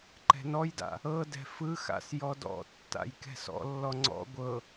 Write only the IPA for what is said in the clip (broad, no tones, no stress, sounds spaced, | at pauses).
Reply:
ǃ ɛ̤ n ɔ j d a̰ | ɤ d ɛ̤ f ɯ x a̰ s j ɔ d ɔ̰ tː a̰ j k ɛ̤ s ɔ̰ lː ɔ ŋ͡ǀ ɔ̰ ɡʷ ɤ